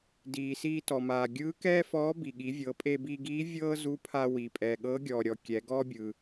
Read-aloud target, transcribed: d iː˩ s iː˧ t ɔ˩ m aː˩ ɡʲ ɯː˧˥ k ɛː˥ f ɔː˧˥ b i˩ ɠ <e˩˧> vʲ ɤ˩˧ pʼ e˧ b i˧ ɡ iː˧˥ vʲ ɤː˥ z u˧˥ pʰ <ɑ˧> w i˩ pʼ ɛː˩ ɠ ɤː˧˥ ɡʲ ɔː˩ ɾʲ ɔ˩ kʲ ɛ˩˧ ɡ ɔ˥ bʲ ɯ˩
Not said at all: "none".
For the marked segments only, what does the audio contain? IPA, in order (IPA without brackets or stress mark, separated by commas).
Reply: i˩˧, a˧